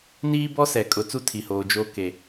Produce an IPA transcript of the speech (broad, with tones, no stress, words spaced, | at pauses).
niː˦bɔ˦sɛ˨ kʼʊ˨ t͡su˦tʰi˨hoː˨ d͡ʒoː˦ ke˨